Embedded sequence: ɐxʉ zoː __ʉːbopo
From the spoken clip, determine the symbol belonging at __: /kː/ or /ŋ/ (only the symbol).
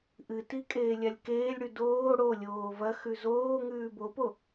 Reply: ŋ